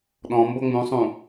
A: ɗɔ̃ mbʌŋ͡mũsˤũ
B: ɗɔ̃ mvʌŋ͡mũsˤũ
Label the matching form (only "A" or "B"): A